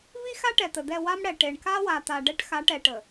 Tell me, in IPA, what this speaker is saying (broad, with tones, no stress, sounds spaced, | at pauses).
v i˦ x a˦ ʈ ɛ˨ t̪ ə˨ d̪ ɛ˦˨ w a˦ m ɽ ɛ˨ ʈ e˨ ɳ k a˦ w a˨ t̪ a˨ ɖ ɛ˦ ʈ x a˨˦ ʈ ɛ˨ ʈ ə˨